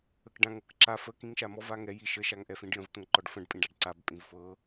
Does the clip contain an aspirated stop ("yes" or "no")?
no